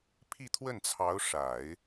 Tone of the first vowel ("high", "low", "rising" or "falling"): falling